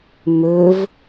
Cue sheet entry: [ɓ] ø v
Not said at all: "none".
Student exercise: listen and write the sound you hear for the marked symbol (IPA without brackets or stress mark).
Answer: m